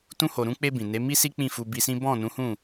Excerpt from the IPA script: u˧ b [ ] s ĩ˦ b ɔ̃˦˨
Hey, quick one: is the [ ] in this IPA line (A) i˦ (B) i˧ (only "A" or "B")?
B